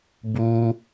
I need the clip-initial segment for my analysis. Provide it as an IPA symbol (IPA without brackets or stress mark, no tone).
b